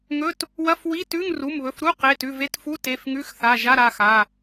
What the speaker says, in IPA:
ŋ ɵ˧˥˧ t | w ɐ˧˥˧ f w i˧˥˧ t ʉ˧˥˧ ŋ r u˩˧˩ m β ɵ˩˧˩ f ɾ u˧˥˧ q e˩˧˩ t ʉ˩˧˩ v e˧˥˧ t f u˧˥˧ t e˩˧˩ f ŋ ʉ˧˥˧ x θ a˩˧˩ ʒ a˧˥˧ ɾ a˩˧˩ x a˩˧˩

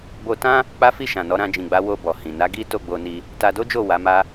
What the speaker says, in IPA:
b o˧ t ã˦ | k͡p a˦ f i˦˨ ʃ ã˨ n ɔ˨˦ ɾ ã˧ d͡ʒ ĩ˨ ɡ͡b a˨˦ w o˧ b ɔ˨ h ĩ˨ n a˨˦ ɡ i˦ t o˦˨ ɡ͡b o˧ n i˧ | t a˧ d o˦ d͡ʒ o˦˨ w a˨˦ m a˦

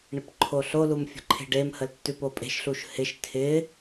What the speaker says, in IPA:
ɳ ɪ p ǃʰ o ɬ o l u m fʲ ə̤ ǃʰ e̤ ɖ e m h ə l tː ʉ p o pʼ e̤ ʃ ɬ u ʃ h ɪ ʃ tʰ ɪ

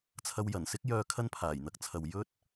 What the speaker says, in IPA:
t͡sʰ ɐ˧ w j ɐ˨˩ n s ɪ˥ k̚ j œː˨˧ kʰ ɐ˧ n pʰ aː˨˩ j n̪ ɐ˨ k̚ t͡sʰ ɐ˨ w j ɵ˥ t̚

